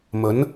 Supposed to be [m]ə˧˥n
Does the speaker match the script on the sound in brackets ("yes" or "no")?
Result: yes